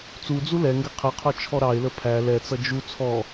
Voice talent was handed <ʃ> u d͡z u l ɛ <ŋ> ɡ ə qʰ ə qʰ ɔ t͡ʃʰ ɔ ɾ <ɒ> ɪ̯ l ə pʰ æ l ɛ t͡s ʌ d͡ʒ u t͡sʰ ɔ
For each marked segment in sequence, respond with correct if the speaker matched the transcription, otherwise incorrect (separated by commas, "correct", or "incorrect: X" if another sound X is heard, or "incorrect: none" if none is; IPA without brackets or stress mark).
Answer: incorrect: t͡s, correct, incorrect: ɑ